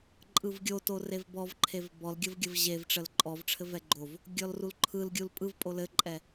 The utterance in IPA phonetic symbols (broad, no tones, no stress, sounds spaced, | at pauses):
ǃʼ ɯ v ɡʲ o t o r e v b ɔ v ǃʰ e v b ɔ l ɡʲ ə v ɡʲ ə v ʑ e v ʈ͡ʂ ə l ǃʼ ɔ v ʈ͡ʂʰ ɘ v ɛ ɡ͡ǃ o v | ɡʲ ɔ l r u l ǃʰ ɯ l ɡʲ u l pʼ ɯ v pʼ o l ɘ ǃʼ ɛ